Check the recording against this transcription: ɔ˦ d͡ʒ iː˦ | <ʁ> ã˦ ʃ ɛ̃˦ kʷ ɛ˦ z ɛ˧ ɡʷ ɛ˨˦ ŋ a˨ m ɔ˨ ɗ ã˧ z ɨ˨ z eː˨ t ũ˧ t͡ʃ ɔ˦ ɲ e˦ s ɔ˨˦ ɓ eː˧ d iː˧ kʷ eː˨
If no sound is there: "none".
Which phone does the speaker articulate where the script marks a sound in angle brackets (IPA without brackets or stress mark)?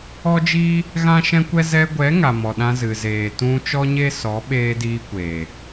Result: ɣ